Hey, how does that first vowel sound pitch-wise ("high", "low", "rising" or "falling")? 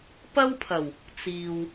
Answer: high